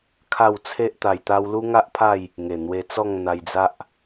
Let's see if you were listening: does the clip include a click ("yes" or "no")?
no